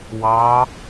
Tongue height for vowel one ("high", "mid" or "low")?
low